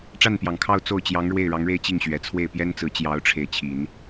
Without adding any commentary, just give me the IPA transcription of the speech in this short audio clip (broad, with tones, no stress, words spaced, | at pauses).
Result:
ʈ͡ʂa˥˩npjɑ˨˩ŋkʰɑ˥˧ʊ̯ t͡so˥˩ʊ̯t͡ɕjɑ˧˥ŋɻwe˥˩ɪ̯ ɻɑ˧˥ŋɻe˥˧ɪ̯t͡ɕi˥˩ŋɕɥɛ˨˩ t͡sʰwe˥˩ɪ̯ pjɛ˥nt͡sɹ̩˧˥t͡ɕjɑ˧˥ʊ̯ ʈ͡ʂʰe˥˩ɪ̯ t͡ɕʰi˨˩˦n